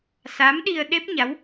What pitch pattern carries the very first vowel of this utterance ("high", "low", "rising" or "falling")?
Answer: rising